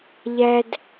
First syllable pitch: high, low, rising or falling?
high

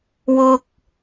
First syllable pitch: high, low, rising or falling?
high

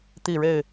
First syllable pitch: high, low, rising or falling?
falling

